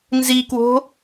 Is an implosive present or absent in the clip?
absent